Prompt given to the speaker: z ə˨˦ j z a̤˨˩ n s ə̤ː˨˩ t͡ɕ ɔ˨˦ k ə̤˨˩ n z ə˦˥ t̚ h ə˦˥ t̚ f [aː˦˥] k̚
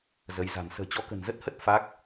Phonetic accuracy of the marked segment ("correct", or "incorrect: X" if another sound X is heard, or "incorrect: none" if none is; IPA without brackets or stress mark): correct